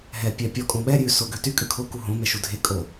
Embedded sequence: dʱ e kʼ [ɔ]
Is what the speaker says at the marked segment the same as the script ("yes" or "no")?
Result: no